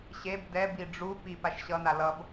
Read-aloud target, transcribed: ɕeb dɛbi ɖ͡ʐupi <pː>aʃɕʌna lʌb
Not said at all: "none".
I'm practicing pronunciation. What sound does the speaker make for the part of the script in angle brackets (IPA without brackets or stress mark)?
p